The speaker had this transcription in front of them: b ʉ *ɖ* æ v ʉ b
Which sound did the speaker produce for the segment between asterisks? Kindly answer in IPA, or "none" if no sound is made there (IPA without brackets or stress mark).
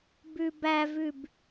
b